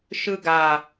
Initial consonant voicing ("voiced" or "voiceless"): voiceless